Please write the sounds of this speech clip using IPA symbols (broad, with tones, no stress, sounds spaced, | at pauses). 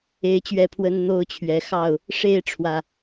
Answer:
e˨˦ ɪ̯ t͡ɕ ɥ ɛ˥˨ pʰ w ə˦ n n̪ o˦ ʊ̯ t͡ɕʰ ɥ ɛ˨˦ x ɑ˥˨ ʊ̯ | ʂ e˥˨ ɪ̯ ʈ͡ʂʰ w ä˨˩